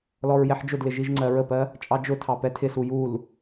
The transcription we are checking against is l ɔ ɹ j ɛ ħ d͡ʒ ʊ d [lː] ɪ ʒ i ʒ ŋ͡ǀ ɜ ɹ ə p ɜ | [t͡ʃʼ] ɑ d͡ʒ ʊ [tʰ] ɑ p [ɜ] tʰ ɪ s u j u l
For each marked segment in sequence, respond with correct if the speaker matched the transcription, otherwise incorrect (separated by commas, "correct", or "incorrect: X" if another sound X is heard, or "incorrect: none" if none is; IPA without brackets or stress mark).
incorrect: l, correct, correct, incorrect: ɛ